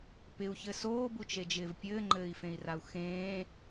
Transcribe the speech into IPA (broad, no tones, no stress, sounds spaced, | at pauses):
p ɪ u̯ ç ɘ s oː b u t͡ʃ e d͡ʒ ɪː v pʲ ɘː ŋ͡ǃ ɘː i̯ f ẽ i̯ r a u̯ x ẽː